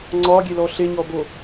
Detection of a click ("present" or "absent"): present